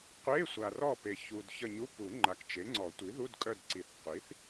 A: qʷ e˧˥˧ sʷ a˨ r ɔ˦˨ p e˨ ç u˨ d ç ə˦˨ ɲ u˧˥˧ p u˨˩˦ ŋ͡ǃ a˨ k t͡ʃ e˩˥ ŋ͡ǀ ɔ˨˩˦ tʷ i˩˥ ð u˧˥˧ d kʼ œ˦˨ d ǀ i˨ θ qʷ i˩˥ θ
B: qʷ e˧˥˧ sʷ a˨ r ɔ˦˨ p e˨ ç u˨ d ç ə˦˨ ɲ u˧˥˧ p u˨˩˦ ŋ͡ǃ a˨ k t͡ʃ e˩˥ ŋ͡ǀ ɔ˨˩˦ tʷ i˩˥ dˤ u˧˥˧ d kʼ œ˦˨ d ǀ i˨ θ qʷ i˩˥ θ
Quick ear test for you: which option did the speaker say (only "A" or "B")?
A